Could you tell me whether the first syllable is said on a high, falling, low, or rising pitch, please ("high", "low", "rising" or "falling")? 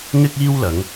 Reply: high